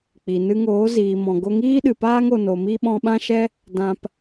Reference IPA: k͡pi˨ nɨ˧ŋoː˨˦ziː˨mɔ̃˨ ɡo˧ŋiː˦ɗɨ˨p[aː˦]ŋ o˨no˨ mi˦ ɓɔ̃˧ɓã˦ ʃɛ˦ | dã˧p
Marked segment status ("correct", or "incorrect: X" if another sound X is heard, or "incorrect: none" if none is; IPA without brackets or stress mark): correct